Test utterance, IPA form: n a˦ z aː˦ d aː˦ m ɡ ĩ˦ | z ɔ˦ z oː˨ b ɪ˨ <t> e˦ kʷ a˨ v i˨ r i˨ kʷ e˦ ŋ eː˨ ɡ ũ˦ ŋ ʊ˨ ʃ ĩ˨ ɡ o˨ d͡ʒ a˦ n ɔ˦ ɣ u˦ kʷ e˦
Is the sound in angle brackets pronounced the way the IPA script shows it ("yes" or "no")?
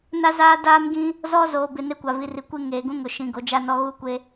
no